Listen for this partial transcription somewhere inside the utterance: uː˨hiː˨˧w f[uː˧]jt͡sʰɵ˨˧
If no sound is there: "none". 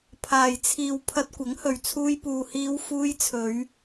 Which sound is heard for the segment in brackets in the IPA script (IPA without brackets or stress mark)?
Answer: uː˧